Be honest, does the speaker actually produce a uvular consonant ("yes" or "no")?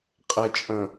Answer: yes